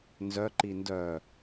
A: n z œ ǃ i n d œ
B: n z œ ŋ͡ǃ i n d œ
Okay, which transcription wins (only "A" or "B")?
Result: A